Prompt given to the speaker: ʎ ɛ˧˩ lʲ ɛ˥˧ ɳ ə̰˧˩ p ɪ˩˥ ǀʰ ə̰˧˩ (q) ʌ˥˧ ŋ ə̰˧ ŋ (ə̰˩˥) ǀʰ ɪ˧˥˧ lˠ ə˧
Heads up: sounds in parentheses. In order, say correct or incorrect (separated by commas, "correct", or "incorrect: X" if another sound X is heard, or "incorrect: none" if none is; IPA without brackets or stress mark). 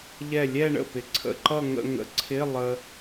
incorrect: ǃ, correct